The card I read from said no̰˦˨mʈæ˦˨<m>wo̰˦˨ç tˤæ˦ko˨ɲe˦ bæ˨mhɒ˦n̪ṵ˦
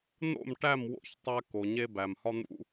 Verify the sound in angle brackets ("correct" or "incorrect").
correct